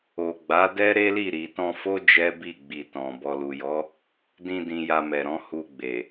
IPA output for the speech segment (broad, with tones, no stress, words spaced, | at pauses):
o˨ɡ͡ba˨˦ dɛ˦ɾe˦li˦˨ ɾi˨tɔ̃˧fo˦ d͡ʒɛ˦bi˦˨ɡ͡bi˨ tɔ̃˨ bɔ˨lu˨jɔ˨˦ | dĩ˧ dĩ˧ja˧mɛ˨ɾɔ̃˨˦ hu˧ɡ͡be˨